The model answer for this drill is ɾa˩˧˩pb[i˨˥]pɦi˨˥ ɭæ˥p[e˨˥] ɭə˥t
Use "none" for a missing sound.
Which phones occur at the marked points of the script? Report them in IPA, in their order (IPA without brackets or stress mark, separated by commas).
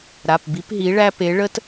i˨˥, e˨˥